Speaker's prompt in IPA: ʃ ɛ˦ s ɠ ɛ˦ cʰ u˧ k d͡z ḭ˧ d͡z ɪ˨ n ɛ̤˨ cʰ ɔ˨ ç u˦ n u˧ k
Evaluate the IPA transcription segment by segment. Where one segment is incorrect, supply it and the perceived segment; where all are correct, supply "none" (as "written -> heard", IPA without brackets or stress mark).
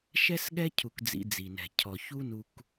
ɪ˨ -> i˨